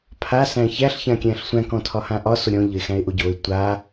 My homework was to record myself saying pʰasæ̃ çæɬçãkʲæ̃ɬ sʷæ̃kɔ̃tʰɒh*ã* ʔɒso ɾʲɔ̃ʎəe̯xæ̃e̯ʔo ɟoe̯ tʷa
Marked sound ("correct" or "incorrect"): correct